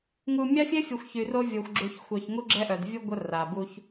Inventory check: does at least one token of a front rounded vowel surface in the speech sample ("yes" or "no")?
yes